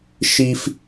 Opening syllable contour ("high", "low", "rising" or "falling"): high